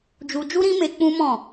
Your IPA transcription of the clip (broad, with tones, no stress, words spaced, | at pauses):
d͡ʒu˧ d͡ʒu˦ɾĩ˦me˧ k͡pũ˦mɔ̃˦˨